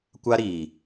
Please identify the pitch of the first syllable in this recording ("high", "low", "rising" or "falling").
high